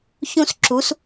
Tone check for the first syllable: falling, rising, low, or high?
high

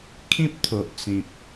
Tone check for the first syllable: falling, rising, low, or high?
high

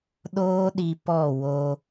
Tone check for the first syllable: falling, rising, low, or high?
high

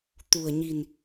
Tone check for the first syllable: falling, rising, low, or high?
low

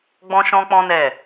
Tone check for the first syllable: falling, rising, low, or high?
high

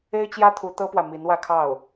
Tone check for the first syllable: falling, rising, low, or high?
high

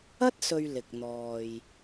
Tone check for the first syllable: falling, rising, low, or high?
high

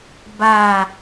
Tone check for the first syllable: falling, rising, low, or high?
low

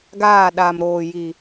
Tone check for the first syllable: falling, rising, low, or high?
falling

